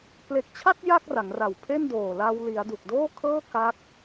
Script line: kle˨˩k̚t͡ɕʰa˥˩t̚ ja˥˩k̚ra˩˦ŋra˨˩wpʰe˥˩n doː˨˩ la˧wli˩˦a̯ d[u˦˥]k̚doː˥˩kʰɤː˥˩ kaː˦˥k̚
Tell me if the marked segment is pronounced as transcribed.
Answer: no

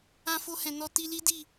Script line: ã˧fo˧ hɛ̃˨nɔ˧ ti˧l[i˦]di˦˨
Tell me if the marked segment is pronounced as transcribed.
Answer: yes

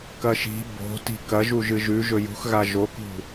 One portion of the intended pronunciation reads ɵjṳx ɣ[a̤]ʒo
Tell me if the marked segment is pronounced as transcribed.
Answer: no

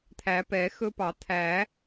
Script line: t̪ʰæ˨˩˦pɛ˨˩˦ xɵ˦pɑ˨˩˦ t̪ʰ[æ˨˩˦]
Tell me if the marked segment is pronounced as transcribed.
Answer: yes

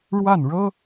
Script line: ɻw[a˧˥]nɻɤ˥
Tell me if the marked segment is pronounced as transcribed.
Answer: no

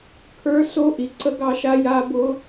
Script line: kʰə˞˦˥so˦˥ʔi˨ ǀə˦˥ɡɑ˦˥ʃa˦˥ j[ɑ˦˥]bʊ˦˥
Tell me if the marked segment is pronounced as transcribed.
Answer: no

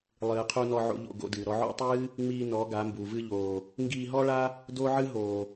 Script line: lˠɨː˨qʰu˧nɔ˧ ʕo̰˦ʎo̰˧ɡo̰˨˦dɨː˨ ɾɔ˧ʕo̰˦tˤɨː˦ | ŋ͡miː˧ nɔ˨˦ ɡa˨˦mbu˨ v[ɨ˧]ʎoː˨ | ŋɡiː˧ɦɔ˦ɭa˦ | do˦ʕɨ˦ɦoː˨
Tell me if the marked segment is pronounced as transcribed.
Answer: yes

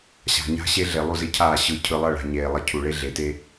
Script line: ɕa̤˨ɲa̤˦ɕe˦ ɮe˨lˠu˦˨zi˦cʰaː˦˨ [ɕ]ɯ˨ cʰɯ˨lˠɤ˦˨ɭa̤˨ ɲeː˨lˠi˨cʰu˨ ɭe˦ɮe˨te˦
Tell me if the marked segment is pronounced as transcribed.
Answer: yes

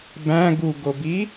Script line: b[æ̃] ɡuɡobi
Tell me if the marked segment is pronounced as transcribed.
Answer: yes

